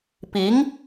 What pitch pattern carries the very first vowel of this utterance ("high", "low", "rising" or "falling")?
rising